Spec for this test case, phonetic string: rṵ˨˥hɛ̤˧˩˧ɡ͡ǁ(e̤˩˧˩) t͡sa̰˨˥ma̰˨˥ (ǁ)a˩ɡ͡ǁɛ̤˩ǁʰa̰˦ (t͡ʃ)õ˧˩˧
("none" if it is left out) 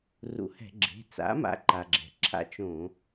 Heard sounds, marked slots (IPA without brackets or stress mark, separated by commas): e̤˩˧˩, ǃ, t͡ʃ